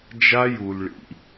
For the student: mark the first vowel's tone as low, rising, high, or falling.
high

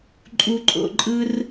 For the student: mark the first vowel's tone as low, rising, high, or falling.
high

